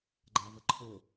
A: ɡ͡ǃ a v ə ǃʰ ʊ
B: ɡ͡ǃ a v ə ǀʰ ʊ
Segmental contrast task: A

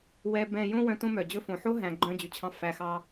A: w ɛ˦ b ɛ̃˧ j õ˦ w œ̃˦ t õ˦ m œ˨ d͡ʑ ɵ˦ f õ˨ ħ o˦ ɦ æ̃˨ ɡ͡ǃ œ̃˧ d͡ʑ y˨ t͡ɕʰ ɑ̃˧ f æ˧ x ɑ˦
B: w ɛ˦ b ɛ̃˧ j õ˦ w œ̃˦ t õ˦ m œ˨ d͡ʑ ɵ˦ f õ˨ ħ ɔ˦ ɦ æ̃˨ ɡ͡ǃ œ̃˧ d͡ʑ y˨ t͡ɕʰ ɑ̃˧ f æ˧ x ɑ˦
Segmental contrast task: A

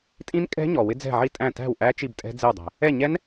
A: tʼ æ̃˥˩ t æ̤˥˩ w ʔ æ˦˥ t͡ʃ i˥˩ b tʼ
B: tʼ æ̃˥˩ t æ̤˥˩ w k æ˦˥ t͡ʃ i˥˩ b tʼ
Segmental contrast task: A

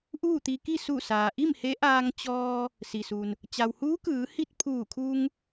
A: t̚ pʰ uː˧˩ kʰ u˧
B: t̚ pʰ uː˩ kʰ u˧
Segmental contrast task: A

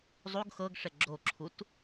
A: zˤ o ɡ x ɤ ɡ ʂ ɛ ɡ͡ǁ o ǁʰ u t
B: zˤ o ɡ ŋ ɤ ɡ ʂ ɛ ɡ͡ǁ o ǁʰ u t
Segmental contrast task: A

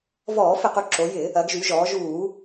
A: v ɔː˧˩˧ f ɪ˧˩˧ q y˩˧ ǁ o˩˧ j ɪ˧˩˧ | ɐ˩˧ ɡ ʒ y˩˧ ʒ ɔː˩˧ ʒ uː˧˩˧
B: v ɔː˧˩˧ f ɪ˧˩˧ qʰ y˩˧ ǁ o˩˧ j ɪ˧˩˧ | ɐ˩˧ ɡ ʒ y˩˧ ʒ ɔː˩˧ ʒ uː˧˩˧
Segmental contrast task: A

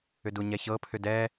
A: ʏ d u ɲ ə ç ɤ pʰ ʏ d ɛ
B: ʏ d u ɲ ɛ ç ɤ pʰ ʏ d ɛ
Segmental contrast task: B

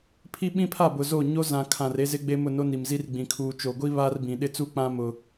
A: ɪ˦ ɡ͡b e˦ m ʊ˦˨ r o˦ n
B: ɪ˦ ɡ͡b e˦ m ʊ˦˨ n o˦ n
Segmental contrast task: B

